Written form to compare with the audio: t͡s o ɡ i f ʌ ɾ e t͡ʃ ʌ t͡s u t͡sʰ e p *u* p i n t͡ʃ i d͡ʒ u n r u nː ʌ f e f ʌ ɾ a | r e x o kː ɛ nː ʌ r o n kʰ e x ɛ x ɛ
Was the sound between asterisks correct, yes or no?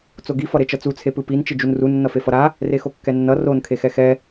no